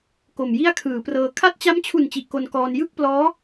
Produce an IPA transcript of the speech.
k o˨˩ m j i˥˩ a̯ kʰ ɯː˩˦ p r ɤː˧ kʰ a˦˥ t̚ t͡ɕ a˦˥ m t͡ɕʰ u˨˩ n t͡ɕ i˨˩ ʔ k o˧ n k ɔː˧ n j ɯ˥˩ k̚ p l ɔː˦˥

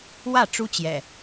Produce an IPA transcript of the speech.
w ä˥˨ ʈ͡ʂ u˦ t͡ɕ j ɛ̰˨˩

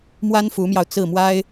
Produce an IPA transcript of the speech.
m w a˥ n f u˧˥ m j ɑ˧ ʊ̯ t͡s ɹ̩˥˩ m w a˥ ɪ̯

